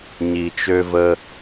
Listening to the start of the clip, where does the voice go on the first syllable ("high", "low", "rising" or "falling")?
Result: low